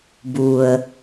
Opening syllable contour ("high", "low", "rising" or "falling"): low